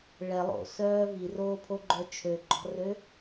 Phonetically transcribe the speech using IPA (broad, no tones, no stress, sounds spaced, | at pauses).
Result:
ɭ ɛ lˠ o̰ s œː v i r oː pʰ o ɡ͡ǃ œ t͡ʃʰ ø ɡ͡ǃ ɔ̤ r ø